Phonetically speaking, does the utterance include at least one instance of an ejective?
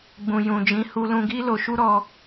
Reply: no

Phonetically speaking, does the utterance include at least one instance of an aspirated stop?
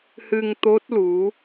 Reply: no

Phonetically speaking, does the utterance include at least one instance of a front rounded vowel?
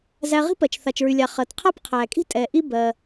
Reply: yes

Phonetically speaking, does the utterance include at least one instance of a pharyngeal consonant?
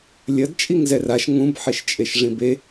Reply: yes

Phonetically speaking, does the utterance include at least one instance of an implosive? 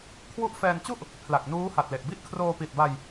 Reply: no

